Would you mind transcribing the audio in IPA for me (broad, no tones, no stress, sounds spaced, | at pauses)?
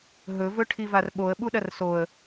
ɦ ɵ v ɵ ʈʰ i v a r ɓ o ə̯ ɓ u ɗ ɐ r s o ə̯